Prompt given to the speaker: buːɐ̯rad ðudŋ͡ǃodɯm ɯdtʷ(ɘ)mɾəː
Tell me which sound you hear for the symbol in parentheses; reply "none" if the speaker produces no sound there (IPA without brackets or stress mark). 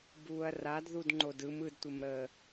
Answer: ɘ